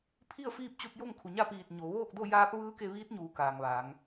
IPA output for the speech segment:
pʰ i˥˨ ə̯ f iː˥˨ p̚ t͡ɕ u˧ t̚ j o˥˨ ŋ kʰ u˩ ɲ a˥˨ p iː˧˩ t̚ ɲ o˩˧ ʋ oː˥˨ k̚ d o˥˨ j aː˧˥ p̚ ʋ ɯː˧˥ k e˧ ʋ iː˧˥ t̚ ɲ uː˩˧ k aː˩ ŋ ʋ aː˩˧ ŋ

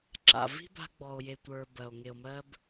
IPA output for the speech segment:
ǁ a̰˨ v i̤˦ b a̤˧ ɡ͡b ɔ˨ o̯ j e˨ tʷ ə˞˨ b ɜ˨ o̯ ŋ e˨ o̯ m ɜ˧ b

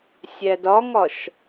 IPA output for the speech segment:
sʲ æ d ɒ ŋ ɒ ʃ

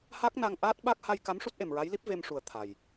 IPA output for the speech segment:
h a˦˥ k̚ n a˧ ŋ ʔ aː˦˥ t̚ ɓ a˦˥ k̚ h a˧ j k a˧˥ m ʂ u˦˥ t̚ ʔ e˨˩ m ɹ a˧˥ j l i˦˥ p̚ v e˧ m ʂ u˨˩ ə̯ t̪ʰ a˨˩ j

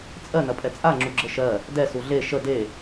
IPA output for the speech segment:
t͡sʼ ɜ n ɐ pʼ ɛ t͡sʼ a ŋ͡ǁ u ɡ͡ǁ ə ʃ ɜ | d ɛ s u ɮ e ʃ ə d e

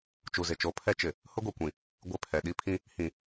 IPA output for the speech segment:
t͡ʃ u˨ z ɪ˨ t͡ʃ o˨˦ pʰ ɛ˦ t͡ʃ ɪ˨ | h ʊ˦ ɡʷ i˨ kʷ ĩ˨ | ɡʷ ɪ˦˨ pʰ ɛ˨ ɗ i˦ pʰ ĩ˦ | h ĩ˨

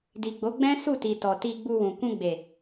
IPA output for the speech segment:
d i˨ ɡ͡b o˨˦ ɡ͡b ɛ̃˦ s u˦˨ t i˨ t ɔ˨ t i˧ ɡ͡b u˧ w ũ˨ k ũ˧ ɡ͡b e˨

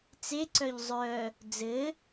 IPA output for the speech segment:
t͡s e ǀ œ ʎ zˤ œ | d͡z ɘ

